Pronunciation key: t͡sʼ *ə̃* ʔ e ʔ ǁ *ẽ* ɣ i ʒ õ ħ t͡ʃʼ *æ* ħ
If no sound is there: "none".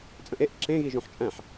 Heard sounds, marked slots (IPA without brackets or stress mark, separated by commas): ə̃, ẽ, æ̃